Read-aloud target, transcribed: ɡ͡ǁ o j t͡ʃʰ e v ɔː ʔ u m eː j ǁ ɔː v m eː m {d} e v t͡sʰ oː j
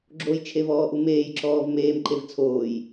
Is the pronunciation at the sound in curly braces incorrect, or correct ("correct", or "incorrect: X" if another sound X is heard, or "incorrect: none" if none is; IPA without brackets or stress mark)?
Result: incorrect: ǃ